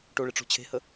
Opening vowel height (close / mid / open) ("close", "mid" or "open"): mid